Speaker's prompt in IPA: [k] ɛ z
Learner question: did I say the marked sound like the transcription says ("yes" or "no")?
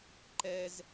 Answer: no